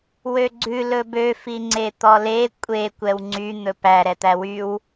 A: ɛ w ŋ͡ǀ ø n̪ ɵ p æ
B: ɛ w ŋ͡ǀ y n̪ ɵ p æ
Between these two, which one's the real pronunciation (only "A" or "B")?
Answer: B